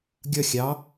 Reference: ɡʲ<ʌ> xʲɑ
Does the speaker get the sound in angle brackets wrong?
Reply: no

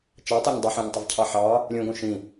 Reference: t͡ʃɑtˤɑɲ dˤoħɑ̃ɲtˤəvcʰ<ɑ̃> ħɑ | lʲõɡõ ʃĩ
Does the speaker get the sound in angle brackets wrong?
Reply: yes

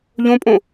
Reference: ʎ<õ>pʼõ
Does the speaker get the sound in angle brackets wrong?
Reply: no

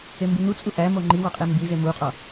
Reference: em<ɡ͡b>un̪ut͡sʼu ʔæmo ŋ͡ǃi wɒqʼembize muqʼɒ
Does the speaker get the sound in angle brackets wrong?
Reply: yes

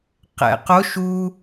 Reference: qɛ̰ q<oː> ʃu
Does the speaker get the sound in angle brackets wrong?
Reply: yes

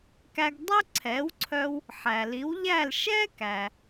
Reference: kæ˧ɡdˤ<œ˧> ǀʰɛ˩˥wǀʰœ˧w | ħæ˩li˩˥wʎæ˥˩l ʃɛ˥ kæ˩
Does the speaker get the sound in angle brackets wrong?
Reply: yes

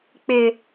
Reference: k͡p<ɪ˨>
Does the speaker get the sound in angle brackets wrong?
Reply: no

